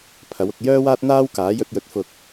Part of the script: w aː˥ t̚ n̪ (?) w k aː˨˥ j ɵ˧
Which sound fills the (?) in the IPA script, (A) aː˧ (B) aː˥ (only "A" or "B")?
B